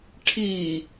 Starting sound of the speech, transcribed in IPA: ʈʰ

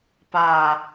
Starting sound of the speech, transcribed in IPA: p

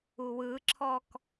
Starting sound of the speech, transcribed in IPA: u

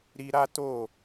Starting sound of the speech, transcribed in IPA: ɾ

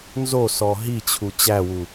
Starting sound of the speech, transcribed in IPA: n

